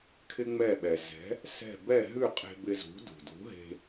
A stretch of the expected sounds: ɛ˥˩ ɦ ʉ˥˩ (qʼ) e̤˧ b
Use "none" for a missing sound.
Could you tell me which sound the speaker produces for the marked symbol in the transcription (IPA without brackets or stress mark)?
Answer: qʼ